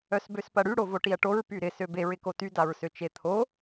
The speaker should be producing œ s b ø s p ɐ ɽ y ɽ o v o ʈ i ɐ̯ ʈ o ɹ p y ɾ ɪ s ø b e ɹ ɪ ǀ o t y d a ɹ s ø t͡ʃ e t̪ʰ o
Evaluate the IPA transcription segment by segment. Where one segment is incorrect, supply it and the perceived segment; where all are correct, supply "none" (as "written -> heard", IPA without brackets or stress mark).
ǀ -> k